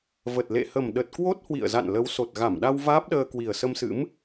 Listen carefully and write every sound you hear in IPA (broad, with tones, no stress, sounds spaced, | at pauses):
v ə˨˩ t̚ l ḛ˧˨ h ə˨˩ m ɗ ə˨˩ t̚ k w o˦˥ t̚ h w ḭ˧˨ ə̯ z a̰˧˨ n l ə˨˦ w s o˨˩ t̚ ɣ a˧˩ m ɗ a˧ w v aː˦˥ p̚ ɗ əː˧ k w i˨˩ ə̯ s ə˧ m s ɨ̰˧˥ m